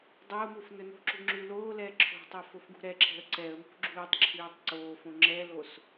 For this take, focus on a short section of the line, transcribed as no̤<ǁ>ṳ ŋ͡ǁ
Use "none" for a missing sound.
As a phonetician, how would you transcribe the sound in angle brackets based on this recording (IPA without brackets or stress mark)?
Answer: ǁ